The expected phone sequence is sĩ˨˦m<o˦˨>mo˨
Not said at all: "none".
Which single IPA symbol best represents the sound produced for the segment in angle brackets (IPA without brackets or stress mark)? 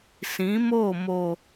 o˦˨